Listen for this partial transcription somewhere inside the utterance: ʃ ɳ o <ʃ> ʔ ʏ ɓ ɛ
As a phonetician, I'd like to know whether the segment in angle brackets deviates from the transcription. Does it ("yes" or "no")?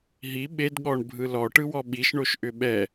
no